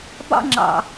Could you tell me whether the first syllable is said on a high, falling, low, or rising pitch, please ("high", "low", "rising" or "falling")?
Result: high